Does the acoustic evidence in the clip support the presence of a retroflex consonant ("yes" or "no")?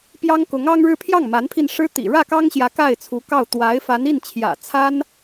yes